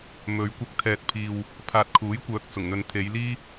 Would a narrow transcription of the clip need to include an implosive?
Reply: no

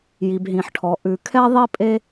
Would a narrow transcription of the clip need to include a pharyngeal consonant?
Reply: yes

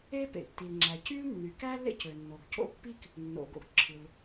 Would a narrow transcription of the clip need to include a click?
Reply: yes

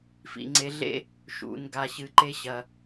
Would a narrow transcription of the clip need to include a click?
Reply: yes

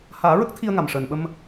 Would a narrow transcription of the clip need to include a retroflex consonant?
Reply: yes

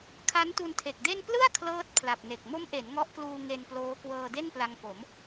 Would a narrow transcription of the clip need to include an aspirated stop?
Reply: yes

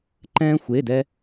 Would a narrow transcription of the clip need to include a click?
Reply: yes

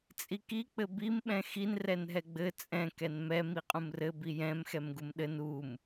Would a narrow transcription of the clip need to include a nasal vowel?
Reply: yes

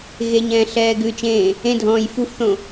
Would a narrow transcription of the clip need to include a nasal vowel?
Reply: yes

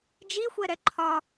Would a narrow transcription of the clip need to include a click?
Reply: yes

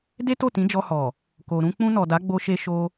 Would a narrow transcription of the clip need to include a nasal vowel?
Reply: yes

